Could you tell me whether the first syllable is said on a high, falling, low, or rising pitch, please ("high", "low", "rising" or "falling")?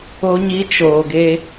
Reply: high